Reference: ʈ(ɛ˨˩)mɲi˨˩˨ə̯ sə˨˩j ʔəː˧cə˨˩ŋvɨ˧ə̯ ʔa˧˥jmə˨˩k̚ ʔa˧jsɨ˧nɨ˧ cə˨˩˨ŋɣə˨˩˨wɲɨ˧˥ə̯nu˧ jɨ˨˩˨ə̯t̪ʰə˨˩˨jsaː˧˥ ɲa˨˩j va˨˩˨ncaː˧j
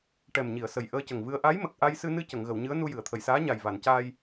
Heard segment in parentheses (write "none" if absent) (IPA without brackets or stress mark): ɛ˨˩